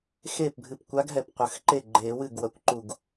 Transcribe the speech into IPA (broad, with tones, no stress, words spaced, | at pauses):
xe˥˩pbʱɨ˧˩p kʷa˧˥ɡɦɛ˧˩p qʷɐ˨˩˦x ǃe˥˩ɡ͡ǃeː˨˩˦wɨ˥˩ɡ wɐ˧˩kʷǃu˧˩ɡ